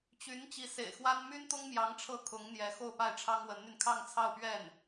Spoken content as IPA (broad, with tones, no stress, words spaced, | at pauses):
t͡ɕy˧˥n t͡ɕi˧˥sḛ˨˩ɪ̯xwa˥n my˥nt̪ʊ˥ŋmjɑ˧˥ŋ ʈ͡ʂʰɤ˥˩kʰʊ˧˥ŋn̪jɛ˧˥ xo˥˧ʊ̯pa˥˩ɪ̯ ʈ͡ʂʰɑ˥ŋwə˧˥nn̪y˧n kʰɑ˥˧ŋt͡sʰɑ˥˧ʊ̯pɥɛ˥˩n